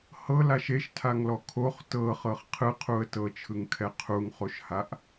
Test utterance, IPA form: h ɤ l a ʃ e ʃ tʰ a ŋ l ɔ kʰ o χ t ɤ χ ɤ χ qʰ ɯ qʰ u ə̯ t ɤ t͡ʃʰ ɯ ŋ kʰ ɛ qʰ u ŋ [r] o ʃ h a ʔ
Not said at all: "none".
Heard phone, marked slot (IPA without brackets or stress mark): χ